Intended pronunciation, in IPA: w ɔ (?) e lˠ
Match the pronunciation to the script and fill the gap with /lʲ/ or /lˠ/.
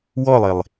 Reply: lˠ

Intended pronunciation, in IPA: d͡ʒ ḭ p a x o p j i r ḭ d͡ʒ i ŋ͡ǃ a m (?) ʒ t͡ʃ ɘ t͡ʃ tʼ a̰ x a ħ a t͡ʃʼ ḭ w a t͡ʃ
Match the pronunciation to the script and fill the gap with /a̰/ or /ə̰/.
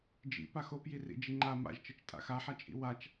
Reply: a̰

